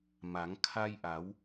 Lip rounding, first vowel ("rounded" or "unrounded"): unrounded